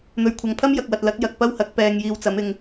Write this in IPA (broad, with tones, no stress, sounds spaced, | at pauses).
n̪ ɵ˨ ɥ kʷʰ ɐ˨ ŋ pʰ ɐ˥ m j ɐ˨ k̚ w ɐ˨ t̚ l ɐ˨˥ k̚ j ɐ˨ k̚ p ɐ˥ w h ɐ˨˥ k̚ p ɛː˨ ŋ j iː˧ w t͡s ɐ˨˥ m ɪ˧ ŋ